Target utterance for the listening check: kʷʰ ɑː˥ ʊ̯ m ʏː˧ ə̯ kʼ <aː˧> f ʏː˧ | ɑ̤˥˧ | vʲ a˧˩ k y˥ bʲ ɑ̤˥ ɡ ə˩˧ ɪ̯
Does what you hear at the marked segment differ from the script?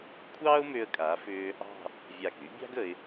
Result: yes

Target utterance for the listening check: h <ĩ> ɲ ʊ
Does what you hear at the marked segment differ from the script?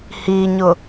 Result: yes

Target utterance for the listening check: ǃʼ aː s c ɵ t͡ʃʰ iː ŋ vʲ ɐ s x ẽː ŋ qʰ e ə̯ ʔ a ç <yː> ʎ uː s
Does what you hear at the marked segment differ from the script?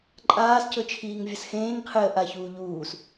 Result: yes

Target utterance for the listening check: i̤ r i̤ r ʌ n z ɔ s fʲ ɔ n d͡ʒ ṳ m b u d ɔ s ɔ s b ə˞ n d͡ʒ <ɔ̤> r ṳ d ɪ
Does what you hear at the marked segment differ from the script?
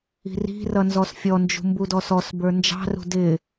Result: yes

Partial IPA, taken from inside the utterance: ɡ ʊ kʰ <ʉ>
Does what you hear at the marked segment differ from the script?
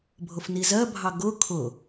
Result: yes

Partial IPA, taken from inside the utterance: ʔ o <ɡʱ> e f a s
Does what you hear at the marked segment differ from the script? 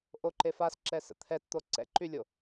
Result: yes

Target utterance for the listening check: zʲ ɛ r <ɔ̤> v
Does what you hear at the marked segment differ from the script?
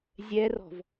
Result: no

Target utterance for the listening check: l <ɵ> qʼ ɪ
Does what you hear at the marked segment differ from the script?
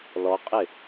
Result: yes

